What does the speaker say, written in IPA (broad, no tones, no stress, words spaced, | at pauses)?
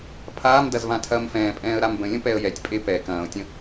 pʰaːmdɐzvãtʰɐːm fɛ̃ːpʼɛ̃ːə̯ ɾambə̃lʲə̃ pɛə̯jɛtʲpʼe pɛ kɐ̃ːʊ̯tʲə̃